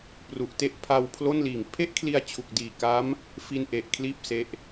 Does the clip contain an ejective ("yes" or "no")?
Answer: no